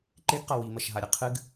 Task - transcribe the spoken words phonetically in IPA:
ǃ e ɡ q ɐ w i m ɐ ʃ ɦ a ɾʲ ɐ qʰ ɨ ɡ

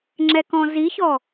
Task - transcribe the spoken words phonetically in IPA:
ŋ͡ǁ ɛ k ɔ̃ z i ç ɔ

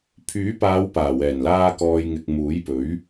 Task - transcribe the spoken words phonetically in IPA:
pʰ yː˨˥ p aː˨˧ w p aː˨˩ w ɛː˨˩ n l aː˧ k ɔː˨ j ŋ ɪ˨ k̚ m uː˨˥ j p ɵ˨˥ ɥ

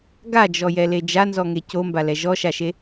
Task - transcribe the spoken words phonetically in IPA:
ɡ a d͡ʒ ɔ j ɛ l e d͡ʒ a n z ɔ ŋ e c o m b a l ɛ ʒ ɔ ʃ a ʃ e

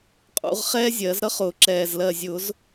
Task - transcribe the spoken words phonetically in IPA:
qʼ ṵ˨˩˦ ʁ χ ɛː˥ zʲ ɜ˨˩˦ z ɾ ʌ˥ χ ʊː˨˩˦ ǁ ɛː˨˩ z l ɜ˨˩ zʲ ʊ˨˩˦ z

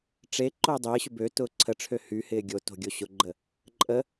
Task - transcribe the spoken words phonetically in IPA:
ʈ͡ʂ e ǃ ʊː dˤ ɪː ɕ ʏ b ø t ʊː ǀʰ ə ʈ͡ʂʰ ø h y h ɪː ɡʲ o t o̤ ɡʲ o ɕ ʊ ɡ͡ǃ ə | ǃʼ ə

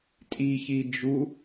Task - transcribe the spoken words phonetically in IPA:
tʼ i ç i d͡ʒ u

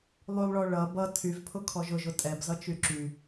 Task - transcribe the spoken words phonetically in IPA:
lˠ y lˠ ɭ ɔ ɭ ʌ b ʌ tʰ y v pʰ ʊ kʰ ɔ ʒ ʊ ʒ ʊ tʼ ɛ b z ʌ t͡ʃ y ǁ y

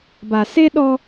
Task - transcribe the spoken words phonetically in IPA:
b a˨ s e˦ ɗ ɔ˦

